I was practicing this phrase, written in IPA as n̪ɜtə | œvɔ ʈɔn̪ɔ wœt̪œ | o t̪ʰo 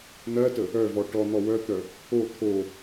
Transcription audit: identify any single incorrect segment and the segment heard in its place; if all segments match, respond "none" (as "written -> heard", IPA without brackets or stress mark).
none